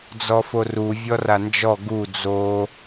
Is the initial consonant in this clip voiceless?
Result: no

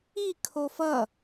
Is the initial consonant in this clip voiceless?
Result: yes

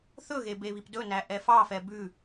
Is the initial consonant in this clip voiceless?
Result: yes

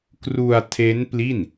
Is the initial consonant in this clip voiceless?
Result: yes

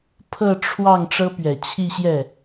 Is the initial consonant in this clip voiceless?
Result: yes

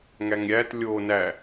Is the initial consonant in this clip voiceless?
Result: no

